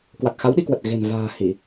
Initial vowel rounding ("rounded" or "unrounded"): unrounded